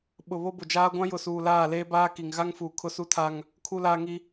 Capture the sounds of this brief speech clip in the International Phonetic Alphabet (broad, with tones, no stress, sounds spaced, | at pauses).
ɓ ʊ˨ β o˦ b ʊ˨ d͡ʒ aː˦ ɡʷ ã˦ j ʊ˨ s uː˨ l aː˦˨ l eː˦ b aː˦ k i˨ ŋ ɣ a˦ ŋ f uː˨ kʰ ʊ˦ s u˦ tʰ a˦ ŋ | kʰ u˦ l aː˦ ŋ i˦